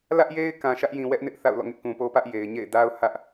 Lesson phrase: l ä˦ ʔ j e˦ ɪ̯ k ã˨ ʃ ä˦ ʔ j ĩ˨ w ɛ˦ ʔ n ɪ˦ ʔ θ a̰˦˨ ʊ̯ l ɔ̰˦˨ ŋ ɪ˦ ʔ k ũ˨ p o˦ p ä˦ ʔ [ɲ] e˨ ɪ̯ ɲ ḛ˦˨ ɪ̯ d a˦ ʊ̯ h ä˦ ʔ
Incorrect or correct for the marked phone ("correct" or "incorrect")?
incorrect